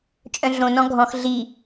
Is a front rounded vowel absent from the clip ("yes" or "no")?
no